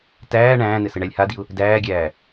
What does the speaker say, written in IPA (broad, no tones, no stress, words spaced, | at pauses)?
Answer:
tæː ɳæ̃ːnɘ sɘɳælʲhadiʊ̯ | dæːɡʲæː